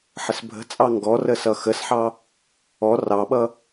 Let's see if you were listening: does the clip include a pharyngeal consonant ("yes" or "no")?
yes